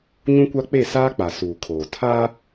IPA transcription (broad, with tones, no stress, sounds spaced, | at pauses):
ɲ ũ˦ kʷ a˦ k͡p e˦˨ s aː˦ k͡p a˨ s uː˨ kʰ oː˨ tʰ aː˦